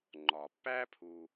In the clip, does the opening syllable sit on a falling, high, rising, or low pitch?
low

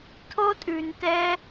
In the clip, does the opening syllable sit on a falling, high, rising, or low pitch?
high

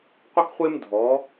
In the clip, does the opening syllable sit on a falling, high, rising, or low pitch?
high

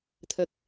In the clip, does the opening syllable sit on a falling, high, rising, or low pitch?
high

